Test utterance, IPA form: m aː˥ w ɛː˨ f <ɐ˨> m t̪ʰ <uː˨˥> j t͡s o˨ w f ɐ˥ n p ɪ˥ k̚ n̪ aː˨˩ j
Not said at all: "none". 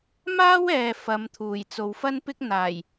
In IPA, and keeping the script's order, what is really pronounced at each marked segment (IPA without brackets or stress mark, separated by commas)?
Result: ɐ˨˧, uː˨˩